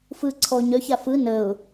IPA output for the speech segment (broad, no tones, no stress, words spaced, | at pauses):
fɯ ǀʰɔ ɲœça fɯ nəʊ̯